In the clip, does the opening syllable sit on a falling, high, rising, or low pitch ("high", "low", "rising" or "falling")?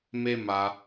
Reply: high